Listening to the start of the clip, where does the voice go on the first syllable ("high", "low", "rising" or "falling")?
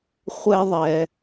high